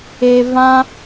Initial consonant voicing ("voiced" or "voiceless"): voiced